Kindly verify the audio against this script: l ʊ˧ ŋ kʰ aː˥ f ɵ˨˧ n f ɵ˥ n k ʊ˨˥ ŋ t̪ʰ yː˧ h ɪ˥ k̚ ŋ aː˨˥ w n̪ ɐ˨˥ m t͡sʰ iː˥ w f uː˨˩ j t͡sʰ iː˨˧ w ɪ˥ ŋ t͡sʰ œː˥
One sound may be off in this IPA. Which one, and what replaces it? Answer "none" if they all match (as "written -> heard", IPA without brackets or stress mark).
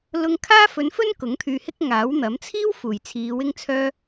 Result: none